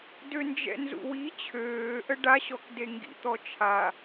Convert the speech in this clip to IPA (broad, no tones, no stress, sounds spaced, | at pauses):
d ø n d͡ʒ ɛ̰ n z ṵ w i t͡ɕʰ øː ʔ ə ɖ a ɕ ɔ k d e ŋ ɡ ḭ t̪ ɔ t͡ʃʰ a